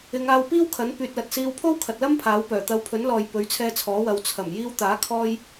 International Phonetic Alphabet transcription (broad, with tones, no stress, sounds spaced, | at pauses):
ɪ˨˧ ŋ aː˧ w p iː˥ w kʰ ɐ˨˥ n p yː˨ t̚ l ɐ˨ t̚ s iː˧ w pʰ o˥ w kʰ ɐ˨ t̚ l ɐ˥ m pʰ aː˨˥ w p œː˨˩ t̪ ɐ˨˧ w pʰ ɵ˨˥ n l ɔː˨ j p ɵ˨˥ ɥ t͡sʰ ɛː˧ t͡sʰ ɔː˨˥ w ɐ˨˧ w t͡sʰ ɐ˨˩ m j iː˧ w t̪ aː˨˥ kʰ ɔː˧ j